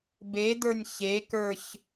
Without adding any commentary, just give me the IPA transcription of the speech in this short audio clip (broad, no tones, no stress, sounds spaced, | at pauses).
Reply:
b e d̪ ə˞ nʲ ç e k ə˞ ç